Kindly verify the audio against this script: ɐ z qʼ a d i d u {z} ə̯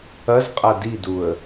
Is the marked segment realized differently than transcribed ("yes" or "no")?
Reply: yes